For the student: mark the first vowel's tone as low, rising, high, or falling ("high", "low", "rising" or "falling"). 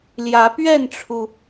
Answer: rising